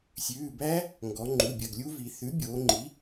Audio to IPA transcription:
sʲ ʉː˩˧˩ b æ˦˥ | ŋ ɡ ɔ˩˧ ŋ͡ǃ u˩˧˩ bʲ ɐ˩˧˩ ɡ lʲ u˦˥ v i˩˧ θ ʉ˩˥ bʲ oː˩˧ ŋ͡ǃ i˩˥

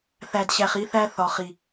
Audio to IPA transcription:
θ æ˨ d ɕ æ˨ χ i˦ θ æ˦ θ ɒ˨ χ i˨

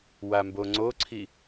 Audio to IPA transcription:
w a m b o ŋ͡ǀ o ǀʰ i

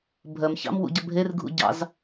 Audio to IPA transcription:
bʱ ɜ m ç ɑ̰ m w ṵ ɟ ɐ bʱ e r ɡʱ ṵ ɟ ɑ̰ z

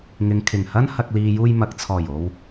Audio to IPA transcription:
ŋ ɪ˨ ŋ kʰ ɪ˨˩ ŋ h ɐ˥ n h ɐ˨ k̚ l iː˨ j uː˧ j m ɐ˨ k̚ t͡sʰ ɔː˨˩ j o˨ w

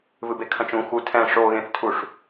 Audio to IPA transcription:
v ɨ b e kʰ ɐ̃ t͡ʃ ũ x u tʰ ɛ̃ ʂ o ɣ ẽ θ tʰ u ʂ

